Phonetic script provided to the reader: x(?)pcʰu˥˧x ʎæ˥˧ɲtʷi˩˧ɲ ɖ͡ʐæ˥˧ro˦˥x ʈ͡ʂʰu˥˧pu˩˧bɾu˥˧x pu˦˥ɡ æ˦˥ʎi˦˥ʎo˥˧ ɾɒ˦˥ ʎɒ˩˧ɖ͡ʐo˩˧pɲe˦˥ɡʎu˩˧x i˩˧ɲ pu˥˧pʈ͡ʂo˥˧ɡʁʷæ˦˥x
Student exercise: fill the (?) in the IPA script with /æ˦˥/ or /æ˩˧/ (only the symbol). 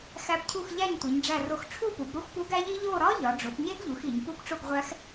æ˦˥